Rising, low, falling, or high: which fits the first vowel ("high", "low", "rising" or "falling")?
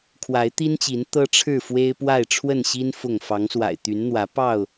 rising